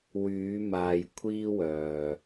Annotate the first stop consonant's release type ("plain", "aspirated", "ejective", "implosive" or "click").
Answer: aspirated